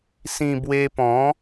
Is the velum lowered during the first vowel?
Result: yes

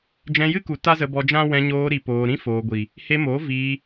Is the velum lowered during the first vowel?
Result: yes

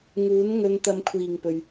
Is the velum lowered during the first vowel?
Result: no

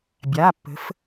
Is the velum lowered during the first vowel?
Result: no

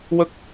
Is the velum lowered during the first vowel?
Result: no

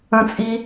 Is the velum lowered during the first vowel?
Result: yes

